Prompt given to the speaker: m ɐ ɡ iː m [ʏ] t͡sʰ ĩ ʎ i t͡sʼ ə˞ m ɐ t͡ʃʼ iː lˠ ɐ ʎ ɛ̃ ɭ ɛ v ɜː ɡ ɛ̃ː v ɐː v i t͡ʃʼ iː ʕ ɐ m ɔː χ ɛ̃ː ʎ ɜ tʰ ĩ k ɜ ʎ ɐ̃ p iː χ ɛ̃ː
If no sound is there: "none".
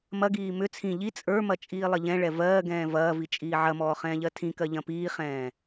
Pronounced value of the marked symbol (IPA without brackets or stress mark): ʏ